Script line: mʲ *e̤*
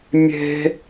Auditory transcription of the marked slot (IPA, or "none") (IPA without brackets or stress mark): e̤